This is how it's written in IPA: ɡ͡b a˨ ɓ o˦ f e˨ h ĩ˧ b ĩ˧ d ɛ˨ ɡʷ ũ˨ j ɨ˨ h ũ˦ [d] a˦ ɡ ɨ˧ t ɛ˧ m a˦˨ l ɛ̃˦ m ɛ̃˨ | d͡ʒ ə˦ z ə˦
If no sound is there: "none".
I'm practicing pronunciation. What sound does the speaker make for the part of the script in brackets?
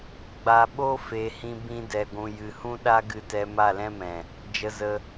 ɗ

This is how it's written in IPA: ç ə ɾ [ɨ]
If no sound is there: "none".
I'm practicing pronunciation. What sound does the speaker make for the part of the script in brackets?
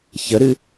ɨ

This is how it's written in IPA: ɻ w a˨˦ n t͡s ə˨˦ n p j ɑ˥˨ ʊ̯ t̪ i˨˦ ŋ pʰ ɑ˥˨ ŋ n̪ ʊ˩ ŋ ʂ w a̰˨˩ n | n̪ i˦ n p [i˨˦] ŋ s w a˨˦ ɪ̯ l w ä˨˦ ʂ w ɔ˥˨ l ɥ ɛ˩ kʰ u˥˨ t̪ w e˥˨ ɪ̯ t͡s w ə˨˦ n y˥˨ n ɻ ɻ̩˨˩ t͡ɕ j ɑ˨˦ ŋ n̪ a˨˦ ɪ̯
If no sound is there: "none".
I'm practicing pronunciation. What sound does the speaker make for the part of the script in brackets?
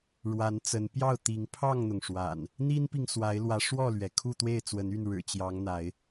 i˨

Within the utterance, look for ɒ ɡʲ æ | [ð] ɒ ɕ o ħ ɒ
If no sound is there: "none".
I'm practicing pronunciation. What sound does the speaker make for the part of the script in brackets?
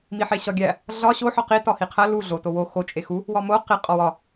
ɮ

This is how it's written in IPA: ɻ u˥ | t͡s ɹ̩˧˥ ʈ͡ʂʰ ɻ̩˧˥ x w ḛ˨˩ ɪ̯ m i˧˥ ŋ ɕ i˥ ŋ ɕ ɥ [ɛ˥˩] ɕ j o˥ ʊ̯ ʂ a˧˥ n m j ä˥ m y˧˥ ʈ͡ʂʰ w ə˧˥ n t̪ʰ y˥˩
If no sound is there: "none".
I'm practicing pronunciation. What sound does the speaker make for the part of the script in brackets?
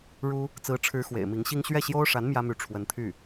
ɛ˥˩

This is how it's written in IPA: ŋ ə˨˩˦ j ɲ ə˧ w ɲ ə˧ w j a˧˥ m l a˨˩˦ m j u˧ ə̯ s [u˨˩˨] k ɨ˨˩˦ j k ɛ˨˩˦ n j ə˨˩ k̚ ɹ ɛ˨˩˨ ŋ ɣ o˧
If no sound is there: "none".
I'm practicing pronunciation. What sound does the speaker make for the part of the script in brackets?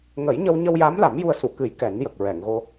u˨˩˨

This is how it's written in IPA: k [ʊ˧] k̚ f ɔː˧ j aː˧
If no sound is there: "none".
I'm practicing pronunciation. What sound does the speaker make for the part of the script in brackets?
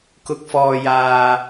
ʊ˧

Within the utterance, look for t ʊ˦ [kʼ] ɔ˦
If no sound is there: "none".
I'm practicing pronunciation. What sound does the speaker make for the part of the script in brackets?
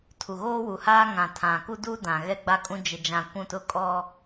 kʼ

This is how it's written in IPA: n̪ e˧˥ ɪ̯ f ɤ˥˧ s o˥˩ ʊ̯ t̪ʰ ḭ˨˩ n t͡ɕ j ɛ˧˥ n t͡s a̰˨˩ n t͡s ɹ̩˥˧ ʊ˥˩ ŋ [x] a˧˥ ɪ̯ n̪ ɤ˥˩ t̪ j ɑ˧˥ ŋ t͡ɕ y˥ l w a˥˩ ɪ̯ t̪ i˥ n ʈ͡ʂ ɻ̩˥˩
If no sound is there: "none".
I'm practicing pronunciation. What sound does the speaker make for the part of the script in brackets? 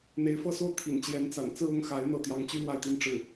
x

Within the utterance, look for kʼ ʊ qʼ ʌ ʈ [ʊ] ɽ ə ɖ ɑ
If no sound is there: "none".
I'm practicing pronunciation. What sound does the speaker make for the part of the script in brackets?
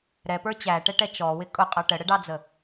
ə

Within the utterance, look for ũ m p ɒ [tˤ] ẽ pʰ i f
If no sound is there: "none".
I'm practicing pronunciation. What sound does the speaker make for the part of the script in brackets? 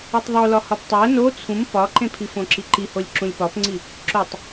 ǃ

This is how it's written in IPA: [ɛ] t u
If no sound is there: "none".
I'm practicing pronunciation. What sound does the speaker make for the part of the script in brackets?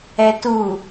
ɛ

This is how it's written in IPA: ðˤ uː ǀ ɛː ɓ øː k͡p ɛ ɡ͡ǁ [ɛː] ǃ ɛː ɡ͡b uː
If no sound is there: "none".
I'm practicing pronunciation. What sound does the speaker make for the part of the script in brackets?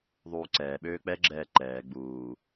ɛː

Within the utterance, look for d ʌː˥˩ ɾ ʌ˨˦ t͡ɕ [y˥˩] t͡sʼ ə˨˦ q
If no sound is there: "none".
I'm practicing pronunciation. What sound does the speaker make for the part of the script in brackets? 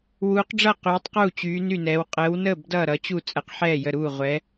u˥˩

